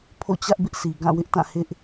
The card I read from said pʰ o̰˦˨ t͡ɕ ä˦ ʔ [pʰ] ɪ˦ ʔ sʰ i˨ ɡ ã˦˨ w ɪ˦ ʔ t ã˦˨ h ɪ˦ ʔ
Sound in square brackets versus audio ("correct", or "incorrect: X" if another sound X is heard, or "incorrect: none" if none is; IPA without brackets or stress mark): incorrect: b